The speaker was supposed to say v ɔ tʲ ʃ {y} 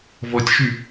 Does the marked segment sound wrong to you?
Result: no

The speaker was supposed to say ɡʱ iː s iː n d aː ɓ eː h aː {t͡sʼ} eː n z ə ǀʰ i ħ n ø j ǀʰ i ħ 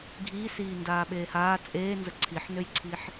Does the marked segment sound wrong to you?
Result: no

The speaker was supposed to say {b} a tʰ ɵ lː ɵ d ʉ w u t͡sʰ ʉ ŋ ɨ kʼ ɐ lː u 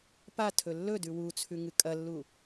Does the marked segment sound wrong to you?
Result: yes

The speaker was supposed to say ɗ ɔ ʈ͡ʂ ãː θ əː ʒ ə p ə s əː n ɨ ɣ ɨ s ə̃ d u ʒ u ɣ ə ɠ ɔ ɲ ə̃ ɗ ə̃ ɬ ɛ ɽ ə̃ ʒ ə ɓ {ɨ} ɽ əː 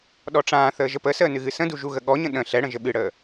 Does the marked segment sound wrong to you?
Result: no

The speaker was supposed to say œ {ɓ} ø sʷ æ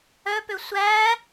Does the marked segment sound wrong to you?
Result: yes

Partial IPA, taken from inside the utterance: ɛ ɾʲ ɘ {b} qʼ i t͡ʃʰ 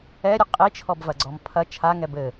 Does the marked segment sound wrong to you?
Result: yes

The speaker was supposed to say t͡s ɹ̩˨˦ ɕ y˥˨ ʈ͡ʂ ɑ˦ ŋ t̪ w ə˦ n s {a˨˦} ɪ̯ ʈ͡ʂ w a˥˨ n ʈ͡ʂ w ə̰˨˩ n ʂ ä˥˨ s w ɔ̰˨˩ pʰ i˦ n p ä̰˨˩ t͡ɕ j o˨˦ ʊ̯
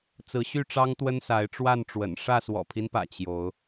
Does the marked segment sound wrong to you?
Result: no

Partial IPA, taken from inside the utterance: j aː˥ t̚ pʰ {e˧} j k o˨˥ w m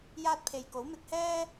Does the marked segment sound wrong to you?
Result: no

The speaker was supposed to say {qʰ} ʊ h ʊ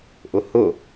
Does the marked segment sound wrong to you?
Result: yes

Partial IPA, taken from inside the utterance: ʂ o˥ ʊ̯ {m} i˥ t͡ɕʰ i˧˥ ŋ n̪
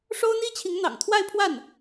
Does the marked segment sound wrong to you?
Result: yes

